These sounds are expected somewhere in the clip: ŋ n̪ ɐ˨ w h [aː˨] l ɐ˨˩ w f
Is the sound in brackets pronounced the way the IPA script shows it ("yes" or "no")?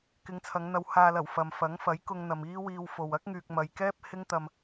yes